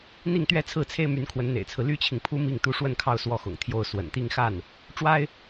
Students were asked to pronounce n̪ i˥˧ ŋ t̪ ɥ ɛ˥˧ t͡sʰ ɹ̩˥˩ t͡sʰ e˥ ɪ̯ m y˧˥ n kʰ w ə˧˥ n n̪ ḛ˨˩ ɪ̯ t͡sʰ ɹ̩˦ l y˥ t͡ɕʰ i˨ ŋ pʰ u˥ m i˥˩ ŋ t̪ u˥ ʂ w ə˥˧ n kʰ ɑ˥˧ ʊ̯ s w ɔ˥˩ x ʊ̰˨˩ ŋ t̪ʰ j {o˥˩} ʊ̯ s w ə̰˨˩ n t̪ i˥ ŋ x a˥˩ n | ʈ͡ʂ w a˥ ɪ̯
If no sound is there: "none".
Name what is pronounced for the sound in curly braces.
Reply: o˥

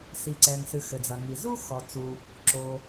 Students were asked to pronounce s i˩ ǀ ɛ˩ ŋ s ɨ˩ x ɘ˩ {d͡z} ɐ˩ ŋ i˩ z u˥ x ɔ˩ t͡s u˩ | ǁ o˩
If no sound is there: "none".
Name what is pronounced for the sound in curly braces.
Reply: d͡z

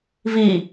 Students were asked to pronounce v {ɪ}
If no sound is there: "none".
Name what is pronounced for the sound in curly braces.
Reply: i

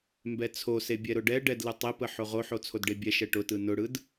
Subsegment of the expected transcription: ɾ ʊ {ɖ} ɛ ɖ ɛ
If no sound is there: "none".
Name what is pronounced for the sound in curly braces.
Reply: ɖ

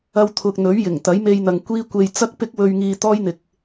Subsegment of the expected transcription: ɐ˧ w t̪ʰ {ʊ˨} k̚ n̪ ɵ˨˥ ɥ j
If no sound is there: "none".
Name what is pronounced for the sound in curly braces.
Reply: ʊ˨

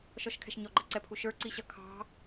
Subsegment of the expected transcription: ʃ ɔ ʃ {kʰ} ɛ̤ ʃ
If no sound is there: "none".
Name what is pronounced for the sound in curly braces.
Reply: kʰ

